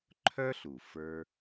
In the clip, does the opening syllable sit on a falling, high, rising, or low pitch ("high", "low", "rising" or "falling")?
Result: high